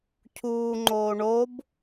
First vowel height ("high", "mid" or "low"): high